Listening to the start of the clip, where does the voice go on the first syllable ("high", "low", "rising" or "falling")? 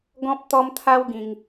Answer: high